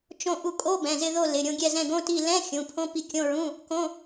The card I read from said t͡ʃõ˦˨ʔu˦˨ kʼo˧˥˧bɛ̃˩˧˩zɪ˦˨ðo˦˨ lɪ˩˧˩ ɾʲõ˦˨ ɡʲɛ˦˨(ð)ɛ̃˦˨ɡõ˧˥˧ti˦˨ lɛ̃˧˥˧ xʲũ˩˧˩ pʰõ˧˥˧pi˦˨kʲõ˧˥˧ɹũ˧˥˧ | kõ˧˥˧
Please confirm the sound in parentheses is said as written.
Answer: no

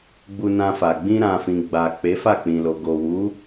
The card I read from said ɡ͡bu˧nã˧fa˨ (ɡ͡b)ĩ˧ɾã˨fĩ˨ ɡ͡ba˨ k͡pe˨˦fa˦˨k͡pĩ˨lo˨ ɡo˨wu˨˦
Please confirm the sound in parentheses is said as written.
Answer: yes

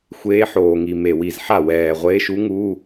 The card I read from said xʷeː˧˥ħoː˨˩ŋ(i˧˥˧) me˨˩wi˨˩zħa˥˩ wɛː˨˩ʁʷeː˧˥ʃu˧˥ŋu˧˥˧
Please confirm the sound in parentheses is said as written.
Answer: no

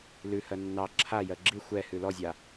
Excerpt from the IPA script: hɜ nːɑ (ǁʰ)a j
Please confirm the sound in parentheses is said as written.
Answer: yes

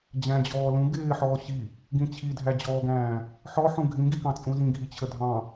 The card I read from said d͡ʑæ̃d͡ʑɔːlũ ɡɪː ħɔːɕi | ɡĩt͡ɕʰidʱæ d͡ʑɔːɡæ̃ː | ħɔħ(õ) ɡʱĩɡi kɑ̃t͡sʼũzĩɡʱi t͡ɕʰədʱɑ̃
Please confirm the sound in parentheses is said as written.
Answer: no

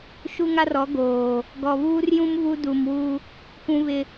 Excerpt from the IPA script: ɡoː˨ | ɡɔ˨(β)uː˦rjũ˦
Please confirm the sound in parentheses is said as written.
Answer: yes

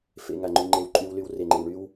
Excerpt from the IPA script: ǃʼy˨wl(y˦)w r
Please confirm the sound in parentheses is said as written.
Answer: no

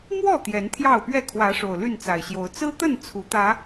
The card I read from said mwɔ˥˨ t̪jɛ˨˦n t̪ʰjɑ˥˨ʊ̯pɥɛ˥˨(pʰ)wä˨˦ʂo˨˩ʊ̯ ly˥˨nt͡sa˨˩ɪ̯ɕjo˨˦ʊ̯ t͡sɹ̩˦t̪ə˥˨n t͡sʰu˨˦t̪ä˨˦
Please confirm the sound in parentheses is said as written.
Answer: no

